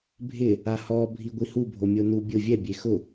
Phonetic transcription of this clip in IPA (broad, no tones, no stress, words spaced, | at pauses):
bʱɪ | ahɔ bʱiɡʷihu bʱomʲonu bʲʊ vʲɛ bʲexʊ